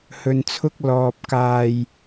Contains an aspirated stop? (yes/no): yes